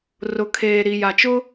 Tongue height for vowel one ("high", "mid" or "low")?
high